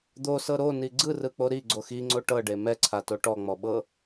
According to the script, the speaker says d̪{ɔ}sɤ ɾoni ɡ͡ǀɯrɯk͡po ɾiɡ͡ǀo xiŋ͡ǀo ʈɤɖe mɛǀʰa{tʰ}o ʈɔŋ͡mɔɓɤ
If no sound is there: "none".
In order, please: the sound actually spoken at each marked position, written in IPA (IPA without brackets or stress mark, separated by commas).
o, t